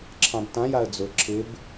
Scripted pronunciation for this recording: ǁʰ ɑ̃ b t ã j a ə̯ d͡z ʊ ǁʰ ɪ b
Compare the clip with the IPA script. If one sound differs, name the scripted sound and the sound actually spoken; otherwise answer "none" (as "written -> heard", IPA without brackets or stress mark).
none